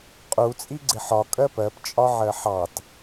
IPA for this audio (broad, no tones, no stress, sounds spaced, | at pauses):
qʼ u t͡sʼ i ɡ͡ǀ ɪ ħ ɒ kʼ ɜ p ɜ p t͡ʃʼ ɒ ʕ ɜ ħ ɑ t